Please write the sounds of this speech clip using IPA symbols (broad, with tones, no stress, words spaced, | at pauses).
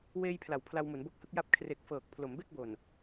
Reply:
weː˧jpʰla˩˦w pʰla˧wmu˩˦nbo˦˥k̚hɯ˦˥k̚ ja˦˥p̚ kʰre˨˩k̚ fɤː˨˩k̚ pʰlo˩˦mbe˥˩k̚bo˨˩n